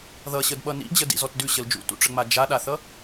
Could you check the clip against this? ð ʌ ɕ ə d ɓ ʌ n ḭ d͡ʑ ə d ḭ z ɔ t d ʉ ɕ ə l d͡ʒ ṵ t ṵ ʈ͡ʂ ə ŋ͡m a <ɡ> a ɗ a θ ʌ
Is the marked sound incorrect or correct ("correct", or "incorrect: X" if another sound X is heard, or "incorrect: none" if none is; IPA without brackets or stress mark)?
incorrect: d͡ʒ